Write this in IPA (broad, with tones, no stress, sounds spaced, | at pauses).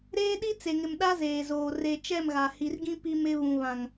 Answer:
ɾ eː˦ ɗ i˦ t͡s e˨ ŋ ɪ˨ m ɗ a˦ z eː˨ z oː˨ r e˨ t͡ʃ ɛ˦˨ m ɣ a˨ h i˨ r ɡ ĩ˦ p i˦ m ɪ˦ β ũ˨ β ã˨ ŋ